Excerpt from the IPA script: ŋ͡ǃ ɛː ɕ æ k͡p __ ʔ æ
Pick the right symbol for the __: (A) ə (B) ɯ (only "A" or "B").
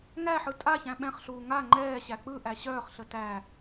B